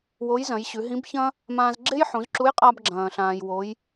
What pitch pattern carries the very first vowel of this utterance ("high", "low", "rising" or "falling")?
rising